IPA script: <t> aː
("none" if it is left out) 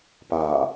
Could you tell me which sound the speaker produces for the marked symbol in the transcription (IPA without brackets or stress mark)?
p